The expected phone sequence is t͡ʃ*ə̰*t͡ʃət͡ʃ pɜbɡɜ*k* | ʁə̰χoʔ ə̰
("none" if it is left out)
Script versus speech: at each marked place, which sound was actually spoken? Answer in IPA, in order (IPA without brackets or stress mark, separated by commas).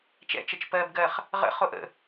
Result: ɛ̰, χ